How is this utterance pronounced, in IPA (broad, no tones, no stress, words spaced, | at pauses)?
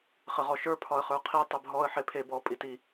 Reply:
χɘʁɔʃə˞ pʰɒə̯χə˞qʰi tˤebɦɔə̯ ħepʰe bɔ pʼiti